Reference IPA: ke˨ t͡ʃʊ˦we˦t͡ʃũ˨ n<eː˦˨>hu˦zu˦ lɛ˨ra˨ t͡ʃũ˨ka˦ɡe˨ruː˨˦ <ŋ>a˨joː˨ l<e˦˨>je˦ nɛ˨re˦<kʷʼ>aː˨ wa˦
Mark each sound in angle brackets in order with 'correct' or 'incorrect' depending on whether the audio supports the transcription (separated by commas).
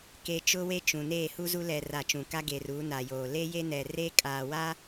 correct, incorrect, incorrect, incorrect